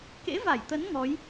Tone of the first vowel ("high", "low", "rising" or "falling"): rising